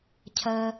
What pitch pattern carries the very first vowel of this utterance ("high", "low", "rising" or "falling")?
low